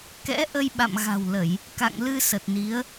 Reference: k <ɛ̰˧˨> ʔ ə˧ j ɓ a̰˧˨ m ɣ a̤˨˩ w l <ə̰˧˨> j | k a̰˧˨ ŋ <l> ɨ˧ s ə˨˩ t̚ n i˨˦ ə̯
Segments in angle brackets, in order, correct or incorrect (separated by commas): incorrect, incorrect, correct